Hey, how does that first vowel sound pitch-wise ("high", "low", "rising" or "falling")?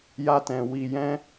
high